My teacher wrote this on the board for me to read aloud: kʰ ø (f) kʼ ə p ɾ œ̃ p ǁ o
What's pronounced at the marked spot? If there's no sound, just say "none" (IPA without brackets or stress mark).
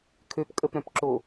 p